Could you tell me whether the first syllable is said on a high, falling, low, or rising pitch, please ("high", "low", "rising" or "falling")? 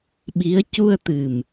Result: rising